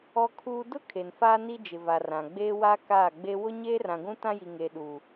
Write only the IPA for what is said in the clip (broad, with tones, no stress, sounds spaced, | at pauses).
ɔ˦ kʰ uː˦ d ʊ˦ kʰ e˨ n f aː˦ n i˦ d͡ʒ ɪ˨ v a˨ r ã˨ ɡ͡b eː˦ w a˦ k aː˦˨ ɡ͡b e˦ w ʊ˦ ɲ eː˦ r ã˨ ɡʷ ũ˦ t ã˦ j i˨ ŋ e˨ ɗ uː˨